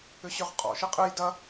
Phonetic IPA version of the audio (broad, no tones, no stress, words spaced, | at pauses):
ʏɕʏʁqʼɔ̰ ʃɨqʼɨj dɐ